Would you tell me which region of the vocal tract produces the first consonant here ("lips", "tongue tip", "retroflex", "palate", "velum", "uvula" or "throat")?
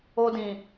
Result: tongue tip